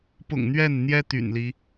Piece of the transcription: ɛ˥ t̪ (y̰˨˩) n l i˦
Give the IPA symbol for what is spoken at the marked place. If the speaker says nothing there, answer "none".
y̰˨˩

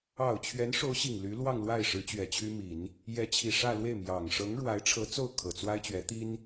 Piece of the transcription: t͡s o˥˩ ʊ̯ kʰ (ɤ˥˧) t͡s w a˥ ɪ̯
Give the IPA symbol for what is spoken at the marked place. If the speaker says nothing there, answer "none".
ɤ˨˩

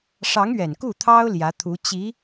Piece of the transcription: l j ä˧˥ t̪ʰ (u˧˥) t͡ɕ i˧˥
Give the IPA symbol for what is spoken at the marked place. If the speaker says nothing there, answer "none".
u˧˥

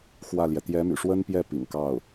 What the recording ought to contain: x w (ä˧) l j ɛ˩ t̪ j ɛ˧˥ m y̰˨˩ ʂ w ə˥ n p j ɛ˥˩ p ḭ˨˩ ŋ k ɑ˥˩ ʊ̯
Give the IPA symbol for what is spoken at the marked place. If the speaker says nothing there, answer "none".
ä˥˩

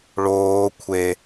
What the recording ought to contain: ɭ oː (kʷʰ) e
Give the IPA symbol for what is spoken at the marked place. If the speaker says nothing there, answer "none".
kʷʰ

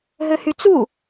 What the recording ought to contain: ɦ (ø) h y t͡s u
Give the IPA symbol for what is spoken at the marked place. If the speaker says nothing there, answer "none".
ø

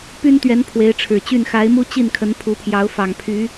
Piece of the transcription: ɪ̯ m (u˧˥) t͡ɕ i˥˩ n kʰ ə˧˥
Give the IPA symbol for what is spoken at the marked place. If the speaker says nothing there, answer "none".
u˥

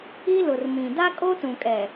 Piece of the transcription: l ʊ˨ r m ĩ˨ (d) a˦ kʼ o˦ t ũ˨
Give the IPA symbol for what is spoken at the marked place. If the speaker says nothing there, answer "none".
d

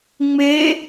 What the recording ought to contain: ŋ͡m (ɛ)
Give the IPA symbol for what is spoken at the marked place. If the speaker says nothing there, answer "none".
e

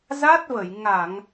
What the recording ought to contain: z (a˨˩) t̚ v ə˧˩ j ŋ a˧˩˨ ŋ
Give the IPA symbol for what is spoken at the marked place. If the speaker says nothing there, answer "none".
a˦˥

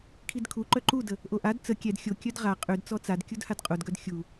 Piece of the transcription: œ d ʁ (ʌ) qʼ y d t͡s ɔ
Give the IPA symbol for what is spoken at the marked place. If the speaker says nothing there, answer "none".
a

